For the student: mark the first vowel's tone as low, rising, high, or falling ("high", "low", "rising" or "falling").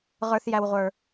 low